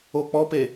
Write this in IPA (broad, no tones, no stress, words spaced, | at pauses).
ok͡pɔpe